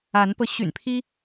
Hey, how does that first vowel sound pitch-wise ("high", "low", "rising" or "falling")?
rising